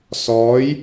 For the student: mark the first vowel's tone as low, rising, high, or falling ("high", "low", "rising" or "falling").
rising